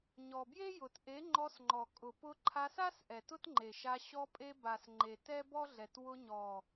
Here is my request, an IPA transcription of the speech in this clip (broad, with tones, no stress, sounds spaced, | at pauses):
ɲ ɔ˨ b j e˦ j ʊ˨ t ʔ e˨˦ ŋ͡ǃ ɔ˧ s ŋ͡ǃ ɔ˨ kʼ ʊ˨ p ʊ˧ ǃʰ a˧ s a˦ s ʔ ɛ˨ t ʊ˦ t ŋ͡ǃ e˨ ʃ a˧ ɕ ɔ˧ pʼ e˧ b a˨ s ŋ͡ǃ e˨ t ɛ˦ b ɔ˦ ɮ ɛ˨ t w ʊ˧ ɲ ɔ˨